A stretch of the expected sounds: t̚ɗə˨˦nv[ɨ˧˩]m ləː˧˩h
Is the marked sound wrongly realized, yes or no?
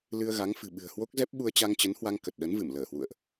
no